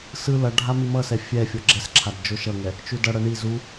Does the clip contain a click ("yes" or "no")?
yes